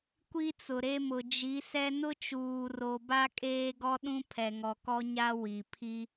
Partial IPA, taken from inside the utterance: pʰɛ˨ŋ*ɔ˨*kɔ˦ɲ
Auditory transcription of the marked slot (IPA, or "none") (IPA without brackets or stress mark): ɔ˨